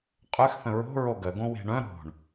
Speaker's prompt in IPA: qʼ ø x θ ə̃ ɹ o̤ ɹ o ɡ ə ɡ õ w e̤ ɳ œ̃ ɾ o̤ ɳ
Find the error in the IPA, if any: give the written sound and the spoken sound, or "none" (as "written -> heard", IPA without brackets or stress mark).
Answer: none